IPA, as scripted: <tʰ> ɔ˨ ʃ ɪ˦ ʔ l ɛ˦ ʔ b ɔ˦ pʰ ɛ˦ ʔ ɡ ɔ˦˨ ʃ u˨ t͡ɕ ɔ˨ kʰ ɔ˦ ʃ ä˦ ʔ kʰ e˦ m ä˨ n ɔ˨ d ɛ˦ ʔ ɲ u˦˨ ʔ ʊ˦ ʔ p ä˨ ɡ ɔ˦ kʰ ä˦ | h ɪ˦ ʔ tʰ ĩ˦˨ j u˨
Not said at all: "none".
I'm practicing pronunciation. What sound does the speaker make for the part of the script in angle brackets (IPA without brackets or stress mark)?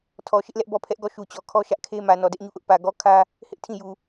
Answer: tʰ